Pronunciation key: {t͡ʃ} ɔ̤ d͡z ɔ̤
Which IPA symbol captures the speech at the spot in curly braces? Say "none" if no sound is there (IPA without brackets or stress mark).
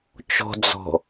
t͡ʃ